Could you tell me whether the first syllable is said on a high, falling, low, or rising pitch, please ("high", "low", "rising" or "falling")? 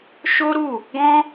high